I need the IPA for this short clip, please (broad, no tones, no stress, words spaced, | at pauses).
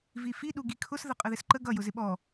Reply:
vifi ɗuɡikʰʊs ðəqʼəðɪsǃə ɡʌ jʊzɪɓɔ